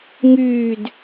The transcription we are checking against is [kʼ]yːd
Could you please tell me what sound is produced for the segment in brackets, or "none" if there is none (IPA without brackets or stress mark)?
ŋ